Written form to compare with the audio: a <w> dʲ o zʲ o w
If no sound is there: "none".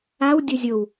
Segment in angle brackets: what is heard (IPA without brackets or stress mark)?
w